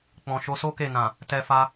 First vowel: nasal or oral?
nasal